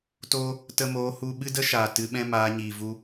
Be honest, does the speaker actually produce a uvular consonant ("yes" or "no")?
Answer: no